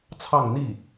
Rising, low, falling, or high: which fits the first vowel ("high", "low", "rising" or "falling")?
falling